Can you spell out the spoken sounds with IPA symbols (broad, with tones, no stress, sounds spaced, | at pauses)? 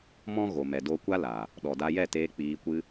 m ɔ̃˦ ɣ o˨ m ɛ˨ d o˧ kʷ a˦ l a˨ | ɗ ɔ˨ d a˧ j ɛ˦˨ t eː˧ k͡p iː˧ kʷ ɨ˦